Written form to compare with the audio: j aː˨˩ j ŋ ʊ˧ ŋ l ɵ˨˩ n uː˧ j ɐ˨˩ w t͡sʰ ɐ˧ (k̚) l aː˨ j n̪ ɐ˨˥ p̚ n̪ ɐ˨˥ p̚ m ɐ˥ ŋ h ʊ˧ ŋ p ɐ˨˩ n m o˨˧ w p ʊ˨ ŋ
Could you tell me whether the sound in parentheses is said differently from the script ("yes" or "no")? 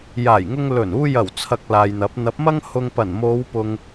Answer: no